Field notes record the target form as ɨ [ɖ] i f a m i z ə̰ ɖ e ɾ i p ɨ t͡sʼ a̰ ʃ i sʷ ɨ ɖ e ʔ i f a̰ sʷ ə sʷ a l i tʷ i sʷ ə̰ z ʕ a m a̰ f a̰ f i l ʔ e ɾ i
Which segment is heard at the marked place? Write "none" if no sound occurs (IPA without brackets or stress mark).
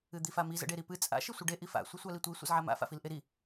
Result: d̪